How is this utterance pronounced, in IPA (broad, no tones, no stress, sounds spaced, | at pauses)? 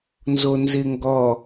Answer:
n z o n z ɪ ŋ ɡ ɔ